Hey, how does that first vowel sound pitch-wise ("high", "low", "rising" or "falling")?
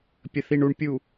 low